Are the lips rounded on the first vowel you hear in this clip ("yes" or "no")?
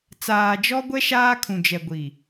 no